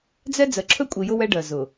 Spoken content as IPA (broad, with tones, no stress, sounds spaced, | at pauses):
d͡z ɛ˦ d͡z ɜ˨ ǁʰ ɵ˦ kʷʼ i˨ j ʊ˦ w ɛ˦ ɖ ɜ˨ z ʊ˨